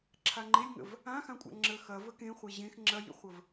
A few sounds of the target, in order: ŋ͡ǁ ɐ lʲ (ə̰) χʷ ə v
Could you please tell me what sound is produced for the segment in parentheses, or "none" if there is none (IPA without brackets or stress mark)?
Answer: ə̰